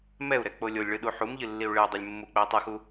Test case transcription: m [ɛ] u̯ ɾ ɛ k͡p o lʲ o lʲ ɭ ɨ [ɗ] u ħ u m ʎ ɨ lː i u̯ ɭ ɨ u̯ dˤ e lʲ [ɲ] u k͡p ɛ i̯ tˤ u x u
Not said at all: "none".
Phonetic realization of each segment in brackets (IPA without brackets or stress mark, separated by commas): ɛ, ɗ, mː